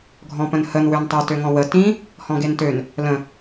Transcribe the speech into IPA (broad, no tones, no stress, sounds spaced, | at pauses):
ɡʱ ɔ̃ p ə̃ n h ə n w ø n tˤ ø t ø ŋ ɔ̃ w ə t ĩ | h ɔ̃ ɡ e n t ø n | l ə̃